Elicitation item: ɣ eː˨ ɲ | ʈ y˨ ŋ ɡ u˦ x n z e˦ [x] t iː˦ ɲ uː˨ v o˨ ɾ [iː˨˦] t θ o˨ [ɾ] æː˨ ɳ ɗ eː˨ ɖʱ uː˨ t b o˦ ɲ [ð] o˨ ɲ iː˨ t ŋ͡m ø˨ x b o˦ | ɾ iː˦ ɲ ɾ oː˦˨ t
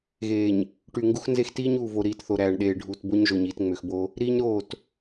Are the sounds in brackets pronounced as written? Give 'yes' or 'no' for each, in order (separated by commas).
yes, yes, yes, no